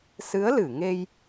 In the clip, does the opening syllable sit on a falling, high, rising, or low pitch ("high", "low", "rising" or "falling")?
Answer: rising